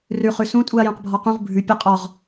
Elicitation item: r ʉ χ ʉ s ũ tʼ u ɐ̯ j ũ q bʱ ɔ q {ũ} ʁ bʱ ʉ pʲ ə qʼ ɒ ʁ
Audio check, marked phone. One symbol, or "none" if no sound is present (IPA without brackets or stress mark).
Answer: ũ